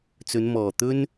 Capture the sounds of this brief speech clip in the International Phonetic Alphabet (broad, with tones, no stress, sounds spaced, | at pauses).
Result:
t͡s ɵ˨˧ n m ɔː˨˩ t̪ ɵ˥ n